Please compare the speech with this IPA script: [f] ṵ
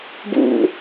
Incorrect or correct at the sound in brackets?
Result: incorrect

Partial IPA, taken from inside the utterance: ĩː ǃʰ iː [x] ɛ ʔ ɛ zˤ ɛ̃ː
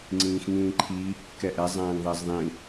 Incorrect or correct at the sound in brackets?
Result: incorrect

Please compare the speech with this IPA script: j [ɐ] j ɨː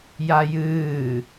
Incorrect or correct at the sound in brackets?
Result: incorrect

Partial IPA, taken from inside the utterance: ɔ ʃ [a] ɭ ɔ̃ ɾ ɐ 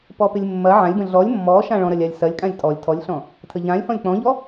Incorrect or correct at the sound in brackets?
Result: incorrect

